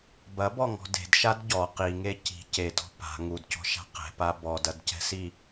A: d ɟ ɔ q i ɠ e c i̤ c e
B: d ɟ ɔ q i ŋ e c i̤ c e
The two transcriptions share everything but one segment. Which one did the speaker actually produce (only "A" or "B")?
B